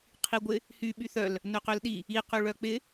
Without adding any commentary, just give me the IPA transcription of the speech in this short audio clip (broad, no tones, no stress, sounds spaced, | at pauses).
qʰ i ɡʷ ɪ | h y ɓ y θ œ l | n œ q ø l ɗ i | i q y ɭ œ k͡p ɪ